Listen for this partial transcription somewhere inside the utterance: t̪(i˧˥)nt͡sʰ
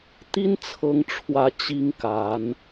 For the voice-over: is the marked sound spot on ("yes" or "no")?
no